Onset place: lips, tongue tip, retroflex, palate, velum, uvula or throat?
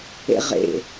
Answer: uvula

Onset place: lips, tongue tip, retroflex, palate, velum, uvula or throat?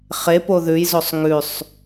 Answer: uvula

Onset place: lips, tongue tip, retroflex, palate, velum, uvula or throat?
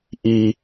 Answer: throat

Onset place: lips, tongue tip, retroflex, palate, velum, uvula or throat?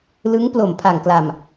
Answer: tongue tip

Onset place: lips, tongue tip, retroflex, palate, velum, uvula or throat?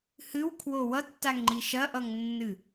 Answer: throat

